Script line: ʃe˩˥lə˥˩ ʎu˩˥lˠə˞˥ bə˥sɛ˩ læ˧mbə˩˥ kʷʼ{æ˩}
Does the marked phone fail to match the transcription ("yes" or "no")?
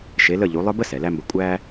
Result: yes